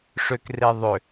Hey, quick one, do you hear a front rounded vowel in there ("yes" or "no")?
yes